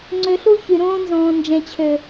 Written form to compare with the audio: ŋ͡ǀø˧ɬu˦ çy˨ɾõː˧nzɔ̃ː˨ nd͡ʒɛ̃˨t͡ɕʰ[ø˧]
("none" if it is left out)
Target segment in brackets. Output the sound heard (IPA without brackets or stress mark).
ø˨